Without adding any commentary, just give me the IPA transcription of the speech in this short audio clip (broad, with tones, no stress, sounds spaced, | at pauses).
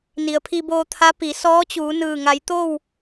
n i˩ ə̯ pʰ i˧ b oː˧ t̪ʰ a˧˥ p i˩˧ s ɔː˧˥ t͡ɕ uː˩˧ n ɯː˧˩ ŋ a˩˧ j t̪ o˥˨ w